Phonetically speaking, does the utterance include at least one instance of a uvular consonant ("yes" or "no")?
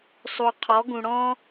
yes